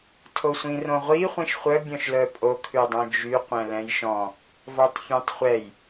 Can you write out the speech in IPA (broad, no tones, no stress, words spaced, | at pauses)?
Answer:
tʰosʷĩrõʁʷi χʷĩʃχʷœ bʲɔ̃ʃlœpʼo kʰʉdˤœ̃d͡ʒy qʷɛ̃lɛ̃jʃɔ̃ | vɔtˤfʲɛ̃tˤχʷɛj